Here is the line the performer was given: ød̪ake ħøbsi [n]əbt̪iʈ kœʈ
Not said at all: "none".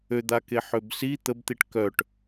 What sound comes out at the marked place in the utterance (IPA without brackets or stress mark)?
t̪